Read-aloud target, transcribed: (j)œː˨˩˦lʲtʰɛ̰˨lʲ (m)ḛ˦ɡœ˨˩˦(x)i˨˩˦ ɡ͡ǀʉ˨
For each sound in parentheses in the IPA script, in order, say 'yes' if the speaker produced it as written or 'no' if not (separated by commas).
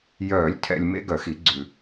yes, yes, yes